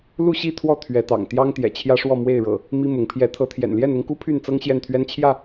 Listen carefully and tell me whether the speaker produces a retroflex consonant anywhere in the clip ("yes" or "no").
yes